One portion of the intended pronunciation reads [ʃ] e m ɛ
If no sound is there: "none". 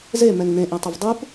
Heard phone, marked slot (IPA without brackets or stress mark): z